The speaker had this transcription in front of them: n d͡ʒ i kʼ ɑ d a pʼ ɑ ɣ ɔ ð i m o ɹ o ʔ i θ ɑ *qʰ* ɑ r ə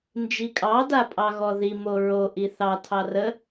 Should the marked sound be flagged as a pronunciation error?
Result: yes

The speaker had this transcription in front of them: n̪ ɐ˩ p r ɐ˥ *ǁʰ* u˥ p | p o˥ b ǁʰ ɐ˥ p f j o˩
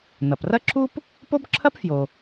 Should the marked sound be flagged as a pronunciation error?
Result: no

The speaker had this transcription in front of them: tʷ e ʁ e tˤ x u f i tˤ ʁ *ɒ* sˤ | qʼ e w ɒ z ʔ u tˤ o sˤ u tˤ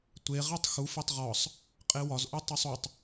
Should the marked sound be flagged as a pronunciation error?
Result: no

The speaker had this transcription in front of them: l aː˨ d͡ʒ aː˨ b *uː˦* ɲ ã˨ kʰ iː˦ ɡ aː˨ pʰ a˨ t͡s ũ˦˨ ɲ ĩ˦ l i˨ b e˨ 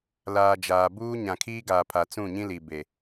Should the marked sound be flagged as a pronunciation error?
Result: no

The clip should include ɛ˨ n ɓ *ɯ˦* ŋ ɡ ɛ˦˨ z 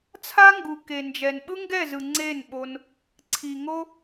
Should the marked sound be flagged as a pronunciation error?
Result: no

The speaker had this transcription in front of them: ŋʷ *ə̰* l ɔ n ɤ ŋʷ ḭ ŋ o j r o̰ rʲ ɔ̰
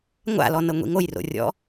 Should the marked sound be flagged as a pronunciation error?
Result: yes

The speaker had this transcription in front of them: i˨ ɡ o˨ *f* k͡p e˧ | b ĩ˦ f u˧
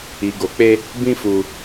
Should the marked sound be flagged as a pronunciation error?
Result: yes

